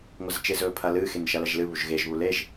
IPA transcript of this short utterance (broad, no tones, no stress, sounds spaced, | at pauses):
ŋʷ ɐ z t͡ʃ e z ɵː pʰ ɐ l ɨː x e n ʃ ɐ l ɐ ʒ l ɨ β u ʒ ɣ e ʒ β u l e ʒ